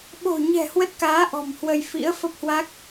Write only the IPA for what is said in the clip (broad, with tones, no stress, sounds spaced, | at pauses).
ɓ o̤˨˩ ɲ ɛ̤˨˩ h w ə˦˥ t̚ k aː˨˦ ʔ ɔ̤˨˩ m h w ə˧ j f ḭ˧˥ ə̯ f ə˦˥ p̚ h w a˦˥ k̚